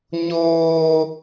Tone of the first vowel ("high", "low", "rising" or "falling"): high